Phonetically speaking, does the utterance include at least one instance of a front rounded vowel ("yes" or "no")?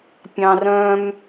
yes